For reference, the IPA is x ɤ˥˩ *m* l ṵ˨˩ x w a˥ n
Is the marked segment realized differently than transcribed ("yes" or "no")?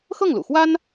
yes